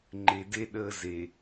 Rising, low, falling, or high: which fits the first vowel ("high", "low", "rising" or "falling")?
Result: low